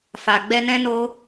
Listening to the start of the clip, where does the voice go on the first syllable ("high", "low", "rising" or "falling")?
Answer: low